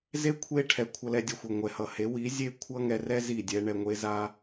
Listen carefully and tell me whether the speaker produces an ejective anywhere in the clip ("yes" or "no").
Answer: no